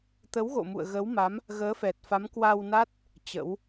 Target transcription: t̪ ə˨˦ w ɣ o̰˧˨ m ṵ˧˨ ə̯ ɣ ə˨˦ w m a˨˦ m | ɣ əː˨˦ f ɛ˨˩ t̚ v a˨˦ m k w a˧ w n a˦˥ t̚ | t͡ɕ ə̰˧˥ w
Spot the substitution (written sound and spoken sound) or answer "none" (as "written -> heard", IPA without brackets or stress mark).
v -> f